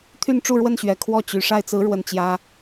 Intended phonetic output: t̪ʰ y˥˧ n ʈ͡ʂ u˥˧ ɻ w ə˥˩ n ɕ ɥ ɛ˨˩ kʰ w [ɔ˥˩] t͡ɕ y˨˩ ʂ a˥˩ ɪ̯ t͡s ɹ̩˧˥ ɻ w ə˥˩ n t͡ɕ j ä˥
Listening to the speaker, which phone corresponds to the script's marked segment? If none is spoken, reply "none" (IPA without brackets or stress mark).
ɔ˥˩